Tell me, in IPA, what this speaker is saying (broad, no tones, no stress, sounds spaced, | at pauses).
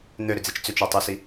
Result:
n̪ ø ɾ ʏ d͡z i t͡ʃ t͡s ʏ t͡ʃ ɔ tˤ u s i